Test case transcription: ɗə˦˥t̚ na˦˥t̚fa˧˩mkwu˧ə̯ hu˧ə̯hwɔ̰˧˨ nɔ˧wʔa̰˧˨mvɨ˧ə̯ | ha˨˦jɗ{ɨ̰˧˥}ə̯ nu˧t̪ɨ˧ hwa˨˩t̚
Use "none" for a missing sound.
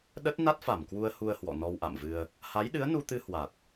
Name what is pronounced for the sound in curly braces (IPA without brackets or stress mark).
ɨ˨˦